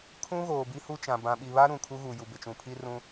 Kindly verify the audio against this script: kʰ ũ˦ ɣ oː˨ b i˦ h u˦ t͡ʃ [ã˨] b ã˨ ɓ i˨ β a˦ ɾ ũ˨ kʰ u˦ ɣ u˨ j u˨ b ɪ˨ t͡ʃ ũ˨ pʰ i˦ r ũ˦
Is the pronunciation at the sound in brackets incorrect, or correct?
correct